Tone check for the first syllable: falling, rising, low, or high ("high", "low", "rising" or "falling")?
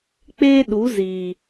high